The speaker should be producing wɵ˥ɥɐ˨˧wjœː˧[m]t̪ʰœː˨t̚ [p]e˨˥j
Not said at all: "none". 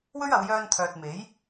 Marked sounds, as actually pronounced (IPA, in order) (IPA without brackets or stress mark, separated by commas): n, m